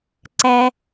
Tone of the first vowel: high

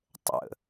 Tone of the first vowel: low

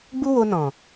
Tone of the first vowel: high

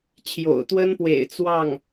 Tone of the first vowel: low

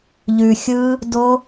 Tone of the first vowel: low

